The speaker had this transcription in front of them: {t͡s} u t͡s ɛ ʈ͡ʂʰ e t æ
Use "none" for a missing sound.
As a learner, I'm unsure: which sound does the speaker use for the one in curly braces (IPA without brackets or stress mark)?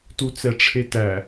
t